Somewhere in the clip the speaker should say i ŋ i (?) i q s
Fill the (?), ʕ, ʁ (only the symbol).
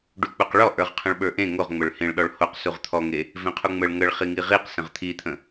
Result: ʁ